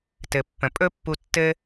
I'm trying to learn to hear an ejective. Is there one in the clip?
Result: yes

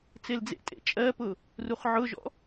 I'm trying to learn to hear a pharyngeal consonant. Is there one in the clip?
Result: yes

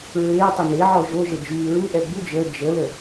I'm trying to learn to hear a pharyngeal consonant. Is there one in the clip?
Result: yes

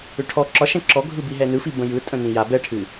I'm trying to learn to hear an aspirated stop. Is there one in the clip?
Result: yes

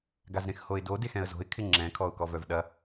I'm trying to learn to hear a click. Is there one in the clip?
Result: yes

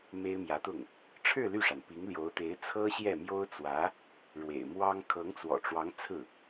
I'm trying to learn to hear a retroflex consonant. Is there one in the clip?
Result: yes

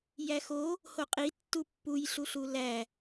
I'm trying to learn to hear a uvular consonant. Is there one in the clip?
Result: yes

